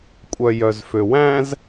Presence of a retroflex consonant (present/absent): absent